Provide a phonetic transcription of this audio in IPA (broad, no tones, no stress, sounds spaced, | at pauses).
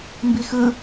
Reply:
m b i x ɯ